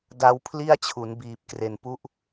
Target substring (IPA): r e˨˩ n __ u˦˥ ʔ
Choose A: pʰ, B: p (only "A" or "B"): B